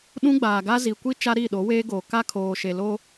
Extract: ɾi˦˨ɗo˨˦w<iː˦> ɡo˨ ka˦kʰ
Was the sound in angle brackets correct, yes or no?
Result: no